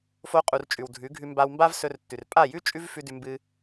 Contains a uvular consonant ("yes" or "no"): yes